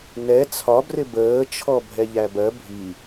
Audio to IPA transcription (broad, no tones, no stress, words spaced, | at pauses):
nɛ t͡sʰɒbrɪ bəːt͡ʃʰɔ bʱɛʎæbɜ bʱi